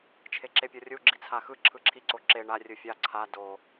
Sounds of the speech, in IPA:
t͡ʃʰ e ǁ e pʲ ɔ rʲ u ɡ͡ǁ i t͡sʰ a x ɯ ǁʰ ɯ ǁʰ i ǀ o ǁ e ɳ a rʲ ɯ fʲ a ǀʰ a d o

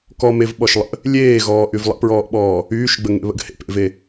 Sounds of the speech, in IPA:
k ɔ m e v ɓ ɔ ʃ lˠ ə̰ | lʲ eː ɣ ɔː ʔ y v lˠ ə̰ p ɹ ɔː ʔ ɓ ɔː | yː ʃ ɡ͡b ə ŋ ḛ β ə̰ ɡ h ḛ p ḛ v e

